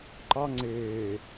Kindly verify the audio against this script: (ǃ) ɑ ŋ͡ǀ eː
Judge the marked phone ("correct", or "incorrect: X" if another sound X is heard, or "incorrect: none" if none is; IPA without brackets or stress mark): correct